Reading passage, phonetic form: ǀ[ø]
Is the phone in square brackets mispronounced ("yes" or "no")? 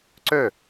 no